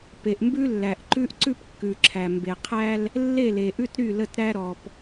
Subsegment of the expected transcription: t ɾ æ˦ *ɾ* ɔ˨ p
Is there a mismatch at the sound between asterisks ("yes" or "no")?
no